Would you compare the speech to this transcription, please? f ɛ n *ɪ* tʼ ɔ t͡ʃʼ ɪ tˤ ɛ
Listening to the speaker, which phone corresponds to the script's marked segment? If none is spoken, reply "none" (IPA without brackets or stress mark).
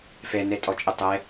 ɛ